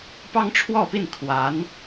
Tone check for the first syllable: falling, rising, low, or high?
high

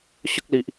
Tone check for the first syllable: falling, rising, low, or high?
high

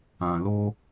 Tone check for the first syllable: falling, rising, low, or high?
low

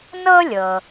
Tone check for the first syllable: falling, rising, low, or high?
high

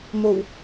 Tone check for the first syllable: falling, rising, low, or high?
low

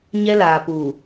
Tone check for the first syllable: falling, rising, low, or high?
high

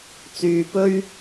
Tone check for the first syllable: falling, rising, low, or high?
low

